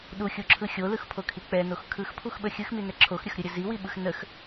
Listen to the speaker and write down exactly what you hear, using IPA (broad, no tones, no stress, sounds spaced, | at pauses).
ɗ u xʲ u ǁʰ ɯ xʲ o l ɯ x pʰ o kʰ i k͡p ɛ n o x kʰ ɯ x pʰ u x ɓ ə xʲ ɯ x m i n ɛ ǁʰ o x ɾʲ ə x ɾʲ ɯ ɾʲ ə z i w i ɓ ɯ x n ə x